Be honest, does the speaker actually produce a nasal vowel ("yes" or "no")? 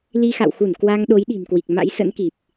no